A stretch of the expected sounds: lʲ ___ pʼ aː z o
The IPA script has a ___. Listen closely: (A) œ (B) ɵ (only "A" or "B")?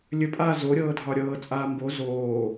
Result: B